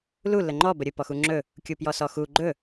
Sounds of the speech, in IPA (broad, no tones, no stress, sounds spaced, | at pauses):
l u l ə ŋ͡ǃ ɔ b ə ɾʲ ɵ p ɔ x u ŋ͡ǁ ɵ | kʲ u p j ɔ s ɔ x u ɡ͡ǃ ɵ